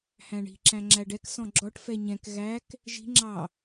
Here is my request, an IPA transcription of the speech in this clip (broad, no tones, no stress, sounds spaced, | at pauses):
h æ̃ ɳ i̤ ǁ æ̃ ŋ͡ǁ æ ɖ ɛ k s ɔ̃ ɡ͡ǁ ɔ ʈ f ɛ ɲ ɛ̃ k ɣ æ k | ʒ i̤ ŋ͡ǁ ɑ